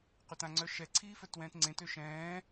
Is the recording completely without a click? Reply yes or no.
no